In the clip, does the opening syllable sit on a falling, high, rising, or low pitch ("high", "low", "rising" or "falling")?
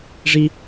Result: high